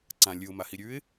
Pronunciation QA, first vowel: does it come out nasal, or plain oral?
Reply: nasal